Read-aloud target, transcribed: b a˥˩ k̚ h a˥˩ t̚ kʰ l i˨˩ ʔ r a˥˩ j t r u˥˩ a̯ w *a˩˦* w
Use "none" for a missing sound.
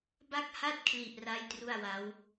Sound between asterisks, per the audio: a˦˥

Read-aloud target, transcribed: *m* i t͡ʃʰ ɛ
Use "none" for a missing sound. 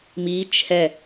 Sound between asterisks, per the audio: m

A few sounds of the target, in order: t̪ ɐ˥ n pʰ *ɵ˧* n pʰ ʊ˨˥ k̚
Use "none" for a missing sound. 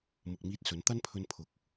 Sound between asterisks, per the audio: ɵ˧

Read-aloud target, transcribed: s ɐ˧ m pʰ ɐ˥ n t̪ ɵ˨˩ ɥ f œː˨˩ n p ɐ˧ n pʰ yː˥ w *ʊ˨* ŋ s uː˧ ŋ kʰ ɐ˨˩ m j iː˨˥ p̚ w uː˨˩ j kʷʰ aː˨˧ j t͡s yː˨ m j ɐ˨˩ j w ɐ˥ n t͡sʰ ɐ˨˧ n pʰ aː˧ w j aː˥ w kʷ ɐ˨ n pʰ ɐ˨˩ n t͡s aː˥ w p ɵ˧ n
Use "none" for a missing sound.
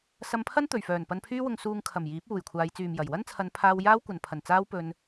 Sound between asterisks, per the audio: ʊ˧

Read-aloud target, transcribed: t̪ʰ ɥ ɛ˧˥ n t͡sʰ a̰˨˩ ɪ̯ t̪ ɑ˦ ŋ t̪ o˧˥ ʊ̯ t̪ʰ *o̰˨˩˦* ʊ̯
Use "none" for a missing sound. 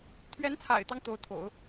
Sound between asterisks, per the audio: o̰˨˩˦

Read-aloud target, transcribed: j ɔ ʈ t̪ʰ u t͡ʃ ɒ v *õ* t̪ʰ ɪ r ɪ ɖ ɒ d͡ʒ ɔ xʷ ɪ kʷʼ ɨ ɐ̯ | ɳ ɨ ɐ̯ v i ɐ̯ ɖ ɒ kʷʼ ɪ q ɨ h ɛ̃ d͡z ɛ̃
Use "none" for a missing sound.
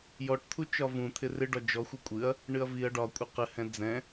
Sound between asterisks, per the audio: ũ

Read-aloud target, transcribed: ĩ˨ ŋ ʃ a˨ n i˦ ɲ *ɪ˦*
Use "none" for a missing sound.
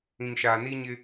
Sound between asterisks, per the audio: ɪ˦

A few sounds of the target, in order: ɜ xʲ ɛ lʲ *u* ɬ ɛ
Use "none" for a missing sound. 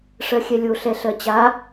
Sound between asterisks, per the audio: o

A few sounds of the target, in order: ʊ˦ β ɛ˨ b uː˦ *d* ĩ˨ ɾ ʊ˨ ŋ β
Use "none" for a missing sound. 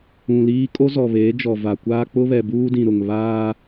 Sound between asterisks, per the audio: d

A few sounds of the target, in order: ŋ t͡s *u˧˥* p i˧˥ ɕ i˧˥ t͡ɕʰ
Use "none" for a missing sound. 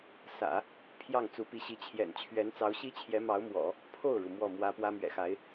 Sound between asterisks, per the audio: u˧˥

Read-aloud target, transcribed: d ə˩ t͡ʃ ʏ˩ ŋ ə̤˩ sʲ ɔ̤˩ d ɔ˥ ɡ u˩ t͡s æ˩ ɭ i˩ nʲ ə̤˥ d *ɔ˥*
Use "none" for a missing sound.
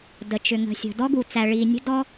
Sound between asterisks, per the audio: ɔ˥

